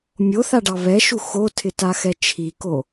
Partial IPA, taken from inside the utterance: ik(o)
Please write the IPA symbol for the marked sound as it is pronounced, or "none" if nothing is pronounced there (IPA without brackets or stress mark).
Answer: o